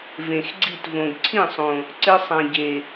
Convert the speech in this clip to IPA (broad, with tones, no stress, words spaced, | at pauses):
vẽ˨xɡ͡ǀi˦˨tvõ˨ɡ ǀʰĩ˦˨sˤõ˨ | ǀɪ˧sˤã˨ɟe˨